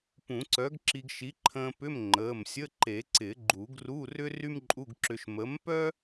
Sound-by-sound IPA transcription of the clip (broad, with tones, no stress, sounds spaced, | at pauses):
p ũ˨˩˦ ǀ œ˨˥ ɡ ǁ i˧ ɡ ʃ i˨˥ ǃʰ ə̃ː˧ p ʏ˧˥˧ m ŋ͡ǃ əː˩˧˩ m sʲ ə˧˥˧ ǃ e˨˩˦ ǀ ɪ˨˩˦ ɡ͡ǃ u˨˩˦ ɡ r u˧˥˧ r ʏ˥ r y˥ m ǃʼ u˧˥˧ ɡ ǁ ʏ˧ ʃ m ə˨˥ m p œ˥